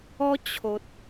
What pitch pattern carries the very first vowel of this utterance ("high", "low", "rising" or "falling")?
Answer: high